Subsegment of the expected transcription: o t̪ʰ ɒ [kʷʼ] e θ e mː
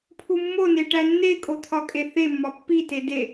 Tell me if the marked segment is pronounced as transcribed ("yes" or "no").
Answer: no